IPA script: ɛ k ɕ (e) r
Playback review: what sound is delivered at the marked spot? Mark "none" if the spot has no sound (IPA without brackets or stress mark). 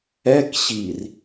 i